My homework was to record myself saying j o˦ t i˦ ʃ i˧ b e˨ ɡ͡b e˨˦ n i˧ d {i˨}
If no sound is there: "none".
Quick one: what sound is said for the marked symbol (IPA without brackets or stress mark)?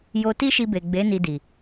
i˨